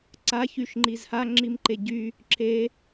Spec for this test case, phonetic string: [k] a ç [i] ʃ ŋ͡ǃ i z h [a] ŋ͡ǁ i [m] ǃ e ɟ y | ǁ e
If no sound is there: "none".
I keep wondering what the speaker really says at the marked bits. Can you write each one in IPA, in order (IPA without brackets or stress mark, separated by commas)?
ǀ, y, a, m